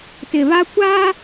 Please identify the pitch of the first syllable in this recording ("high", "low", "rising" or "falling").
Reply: low